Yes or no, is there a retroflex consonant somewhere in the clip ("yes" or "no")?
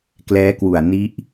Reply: no